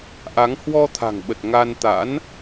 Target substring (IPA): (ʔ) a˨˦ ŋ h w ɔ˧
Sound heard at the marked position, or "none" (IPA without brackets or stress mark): ʔ